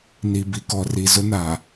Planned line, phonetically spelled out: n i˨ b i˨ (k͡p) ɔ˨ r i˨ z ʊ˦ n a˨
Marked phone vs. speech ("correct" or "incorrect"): incorrect